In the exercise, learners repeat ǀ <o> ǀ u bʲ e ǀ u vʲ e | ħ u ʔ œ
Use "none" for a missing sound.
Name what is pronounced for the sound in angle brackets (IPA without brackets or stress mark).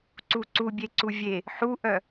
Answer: u